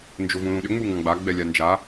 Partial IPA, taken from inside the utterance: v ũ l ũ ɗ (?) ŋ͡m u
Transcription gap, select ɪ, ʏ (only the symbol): ʏ